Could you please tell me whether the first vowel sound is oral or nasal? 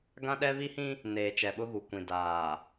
nasal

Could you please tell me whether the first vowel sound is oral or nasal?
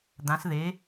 nasal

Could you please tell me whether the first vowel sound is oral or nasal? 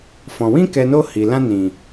nasal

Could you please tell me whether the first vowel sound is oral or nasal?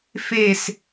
oral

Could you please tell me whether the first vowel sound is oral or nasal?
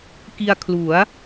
oral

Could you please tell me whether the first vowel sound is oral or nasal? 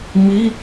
oral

